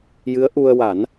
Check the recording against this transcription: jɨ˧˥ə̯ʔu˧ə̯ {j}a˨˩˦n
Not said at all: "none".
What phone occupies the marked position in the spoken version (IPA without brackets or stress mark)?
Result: w